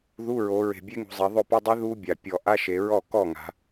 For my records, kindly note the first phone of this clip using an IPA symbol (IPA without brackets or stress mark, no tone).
ð